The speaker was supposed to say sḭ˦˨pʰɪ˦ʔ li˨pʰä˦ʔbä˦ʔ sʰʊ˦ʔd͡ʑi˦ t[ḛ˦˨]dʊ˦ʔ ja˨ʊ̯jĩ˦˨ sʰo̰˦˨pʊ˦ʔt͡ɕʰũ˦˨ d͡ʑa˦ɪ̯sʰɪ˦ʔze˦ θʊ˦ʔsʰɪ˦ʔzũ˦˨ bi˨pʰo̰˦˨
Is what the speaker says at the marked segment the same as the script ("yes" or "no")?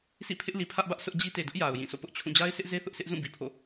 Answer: no